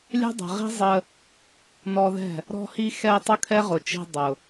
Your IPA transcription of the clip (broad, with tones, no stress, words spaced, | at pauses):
lʲɛ̤˦dˤɛ̤˨ʁi̤˦ zˤə˧ | nɔ˧ðɛ̤˦˨ | ɾɔ̤˧hi˧xɛ˧ tˤʊ˦kʰɛ˦ʁʊ˨t͡ʃi̤˧ dˤʊ˨